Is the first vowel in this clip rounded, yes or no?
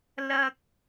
no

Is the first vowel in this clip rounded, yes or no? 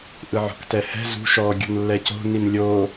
no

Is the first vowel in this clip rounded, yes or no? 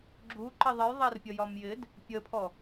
yes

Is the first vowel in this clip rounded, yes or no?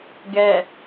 no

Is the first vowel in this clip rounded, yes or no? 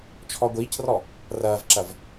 yes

